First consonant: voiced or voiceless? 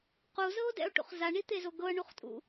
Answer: voiceless